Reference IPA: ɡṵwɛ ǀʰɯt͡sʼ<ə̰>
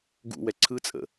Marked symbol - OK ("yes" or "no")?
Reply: yes